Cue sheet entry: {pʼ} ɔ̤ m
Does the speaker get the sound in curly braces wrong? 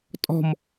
yes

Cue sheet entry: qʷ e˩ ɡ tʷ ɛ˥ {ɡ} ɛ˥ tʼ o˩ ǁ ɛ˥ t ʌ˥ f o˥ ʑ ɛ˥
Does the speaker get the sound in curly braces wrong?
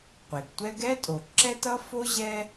no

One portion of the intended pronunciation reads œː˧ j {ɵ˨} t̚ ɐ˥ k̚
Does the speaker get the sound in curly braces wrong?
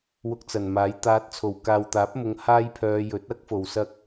yes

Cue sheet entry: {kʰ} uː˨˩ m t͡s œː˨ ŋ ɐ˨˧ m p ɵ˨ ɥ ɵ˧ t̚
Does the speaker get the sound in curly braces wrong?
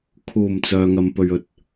no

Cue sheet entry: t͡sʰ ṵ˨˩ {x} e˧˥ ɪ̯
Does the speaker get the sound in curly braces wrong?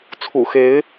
no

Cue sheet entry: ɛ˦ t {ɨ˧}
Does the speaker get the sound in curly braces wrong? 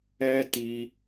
yes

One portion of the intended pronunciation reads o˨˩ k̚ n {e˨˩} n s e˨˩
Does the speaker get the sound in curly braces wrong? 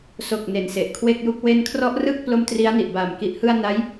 no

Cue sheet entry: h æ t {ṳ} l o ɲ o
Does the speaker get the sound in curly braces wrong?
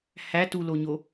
yes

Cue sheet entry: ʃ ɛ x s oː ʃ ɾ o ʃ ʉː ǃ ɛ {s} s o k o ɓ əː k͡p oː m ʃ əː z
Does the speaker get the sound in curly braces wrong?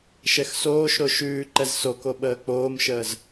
yes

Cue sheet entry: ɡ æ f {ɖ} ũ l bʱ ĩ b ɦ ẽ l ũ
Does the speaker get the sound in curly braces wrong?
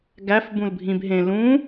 yes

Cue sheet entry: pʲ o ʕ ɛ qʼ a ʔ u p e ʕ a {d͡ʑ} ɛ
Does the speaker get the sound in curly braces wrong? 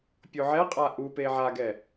yes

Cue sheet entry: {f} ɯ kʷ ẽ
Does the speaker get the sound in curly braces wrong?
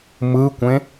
yes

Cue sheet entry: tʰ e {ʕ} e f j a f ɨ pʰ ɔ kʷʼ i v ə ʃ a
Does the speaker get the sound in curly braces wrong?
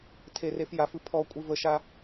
yes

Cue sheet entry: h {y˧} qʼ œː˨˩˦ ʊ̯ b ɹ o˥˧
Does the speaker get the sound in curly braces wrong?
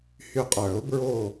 no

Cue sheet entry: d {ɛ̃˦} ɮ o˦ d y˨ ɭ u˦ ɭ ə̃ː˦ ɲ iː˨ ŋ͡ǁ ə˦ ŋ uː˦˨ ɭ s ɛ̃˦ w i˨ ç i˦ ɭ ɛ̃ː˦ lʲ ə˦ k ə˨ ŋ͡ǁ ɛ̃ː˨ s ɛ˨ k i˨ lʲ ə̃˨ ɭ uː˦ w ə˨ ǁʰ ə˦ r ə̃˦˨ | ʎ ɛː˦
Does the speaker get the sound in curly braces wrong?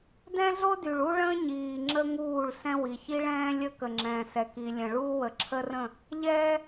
no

